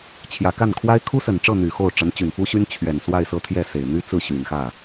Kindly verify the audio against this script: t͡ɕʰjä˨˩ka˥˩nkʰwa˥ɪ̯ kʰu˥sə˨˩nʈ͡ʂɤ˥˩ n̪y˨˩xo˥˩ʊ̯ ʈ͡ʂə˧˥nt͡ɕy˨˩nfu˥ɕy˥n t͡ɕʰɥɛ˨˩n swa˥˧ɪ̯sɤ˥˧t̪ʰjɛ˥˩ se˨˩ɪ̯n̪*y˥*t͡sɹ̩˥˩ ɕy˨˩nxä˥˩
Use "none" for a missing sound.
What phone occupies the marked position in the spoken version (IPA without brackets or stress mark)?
y˥